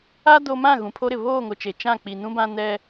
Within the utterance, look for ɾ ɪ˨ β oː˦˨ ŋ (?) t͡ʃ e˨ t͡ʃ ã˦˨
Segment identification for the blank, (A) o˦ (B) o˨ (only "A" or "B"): B